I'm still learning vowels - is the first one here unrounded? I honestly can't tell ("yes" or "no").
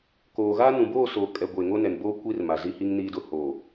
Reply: no